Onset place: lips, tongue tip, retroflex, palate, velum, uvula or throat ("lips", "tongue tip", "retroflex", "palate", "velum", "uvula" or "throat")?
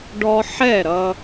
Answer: retroflex